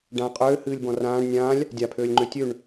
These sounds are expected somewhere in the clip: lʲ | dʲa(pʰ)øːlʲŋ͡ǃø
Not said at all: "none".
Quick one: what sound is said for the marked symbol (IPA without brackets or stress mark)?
pʰ